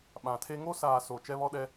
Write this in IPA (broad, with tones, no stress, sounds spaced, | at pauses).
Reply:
ɓ ã˨ tʰ e˦ ŋ o˦ s aː˨ s o˨ t͡ʃ ɛ˦ β ɔ˦ ɗ ɛ˦